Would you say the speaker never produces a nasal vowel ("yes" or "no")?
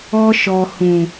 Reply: no